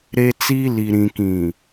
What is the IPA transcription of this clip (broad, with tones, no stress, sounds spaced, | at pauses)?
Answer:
ɾ e˦ t͡s iː˦ l i˨ ɾ ĩ˨ k ĩ˨